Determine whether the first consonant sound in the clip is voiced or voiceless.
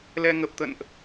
voiced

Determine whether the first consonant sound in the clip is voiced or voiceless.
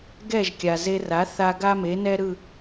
voiced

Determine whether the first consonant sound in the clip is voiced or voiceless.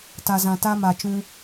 voiceless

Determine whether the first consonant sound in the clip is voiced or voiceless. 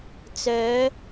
voiceless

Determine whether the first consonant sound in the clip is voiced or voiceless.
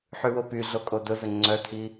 voiceless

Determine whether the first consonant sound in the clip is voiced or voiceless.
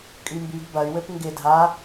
voiceless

